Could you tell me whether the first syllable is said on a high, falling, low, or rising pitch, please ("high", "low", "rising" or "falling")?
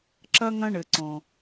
high